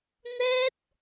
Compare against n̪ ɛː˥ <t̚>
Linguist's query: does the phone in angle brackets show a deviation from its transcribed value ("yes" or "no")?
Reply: no